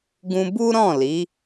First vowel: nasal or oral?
nasal